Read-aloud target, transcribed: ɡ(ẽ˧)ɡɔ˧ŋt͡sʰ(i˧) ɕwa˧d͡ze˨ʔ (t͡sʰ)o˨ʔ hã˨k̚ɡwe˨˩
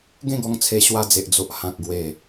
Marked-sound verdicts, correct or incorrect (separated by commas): incorrect, incorrect, incorrect